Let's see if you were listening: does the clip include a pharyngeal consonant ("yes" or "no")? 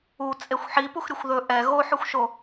yes